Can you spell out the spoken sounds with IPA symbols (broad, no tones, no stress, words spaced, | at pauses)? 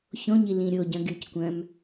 çõɲi lĩɾʲoɟœ̃ ɡyckʷœ̃m